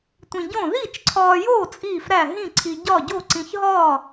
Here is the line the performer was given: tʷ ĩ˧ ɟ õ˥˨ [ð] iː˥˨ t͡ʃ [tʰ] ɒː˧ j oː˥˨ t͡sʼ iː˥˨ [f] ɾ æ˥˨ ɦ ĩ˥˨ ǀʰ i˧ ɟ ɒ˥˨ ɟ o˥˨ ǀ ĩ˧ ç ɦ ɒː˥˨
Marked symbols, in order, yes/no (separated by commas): yes, no, yes